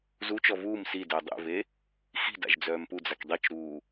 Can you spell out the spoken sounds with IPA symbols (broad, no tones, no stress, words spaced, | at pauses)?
zut͡ʃɔ vuːm sidəː dˤḛve | xi̤da̰ʒ d͡zœːmpud͡zak dˤit͡ʃɾuː